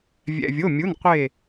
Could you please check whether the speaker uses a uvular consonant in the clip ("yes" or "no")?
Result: yes